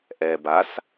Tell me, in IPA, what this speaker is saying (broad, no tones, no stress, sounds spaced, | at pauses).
ʔ ɛ b a s